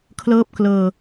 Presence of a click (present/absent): absent